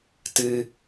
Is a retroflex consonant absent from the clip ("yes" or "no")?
yes